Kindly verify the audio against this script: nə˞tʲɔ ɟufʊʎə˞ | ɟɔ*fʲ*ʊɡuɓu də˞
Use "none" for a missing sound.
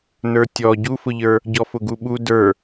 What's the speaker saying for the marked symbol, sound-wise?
f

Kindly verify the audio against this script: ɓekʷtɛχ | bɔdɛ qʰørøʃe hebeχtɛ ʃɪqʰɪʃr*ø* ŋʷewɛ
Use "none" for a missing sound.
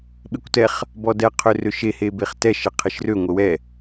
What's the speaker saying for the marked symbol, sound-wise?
ø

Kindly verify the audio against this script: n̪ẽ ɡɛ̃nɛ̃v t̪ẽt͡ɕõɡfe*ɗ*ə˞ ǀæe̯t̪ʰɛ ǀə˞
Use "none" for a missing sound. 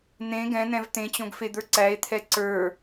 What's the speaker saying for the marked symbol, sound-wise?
d̪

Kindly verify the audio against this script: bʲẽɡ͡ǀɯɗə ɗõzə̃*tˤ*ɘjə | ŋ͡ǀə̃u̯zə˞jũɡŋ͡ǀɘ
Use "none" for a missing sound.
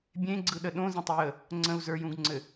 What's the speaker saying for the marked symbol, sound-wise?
tˤ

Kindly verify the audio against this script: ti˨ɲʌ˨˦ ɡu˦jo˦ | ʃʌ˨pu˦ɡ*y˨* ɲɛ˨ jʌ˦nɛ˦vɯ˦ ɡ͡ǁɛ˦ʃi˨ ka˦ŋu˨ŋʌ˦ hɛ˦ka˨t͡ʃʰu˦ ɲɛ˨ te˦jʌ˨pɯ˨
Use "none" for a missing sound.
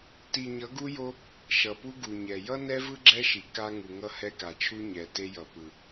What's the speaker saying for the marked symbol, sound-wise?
u˨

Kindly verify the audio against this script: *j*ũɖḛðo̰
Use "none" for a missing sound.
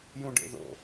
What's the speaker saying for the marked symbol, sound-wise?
j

